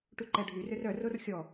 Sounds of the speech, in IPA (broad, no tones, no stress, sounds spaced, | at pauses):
ʈ u ǃ ɛ ɖʱ y r ø r œ r o r xʲ ɔ